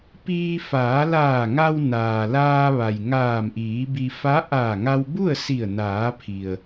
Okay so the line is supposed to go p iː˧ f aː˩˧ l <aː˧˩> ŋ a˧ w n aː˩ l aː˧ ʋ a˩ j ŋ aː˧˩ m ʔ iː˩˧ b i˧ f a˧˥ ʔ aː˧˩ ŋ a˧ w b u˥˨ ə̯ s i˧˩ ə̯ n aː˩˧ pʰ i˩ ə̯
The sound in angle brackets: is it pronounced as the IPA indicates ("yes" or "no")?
yes